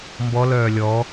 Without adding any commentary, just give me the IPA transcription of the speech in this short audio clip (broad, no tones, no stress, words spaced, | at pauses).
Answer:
mbɔlœː lʲɔ